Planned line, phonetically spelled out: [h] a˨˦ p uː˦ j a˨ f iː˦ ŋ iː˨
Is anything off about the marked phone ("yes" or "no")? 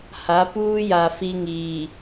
no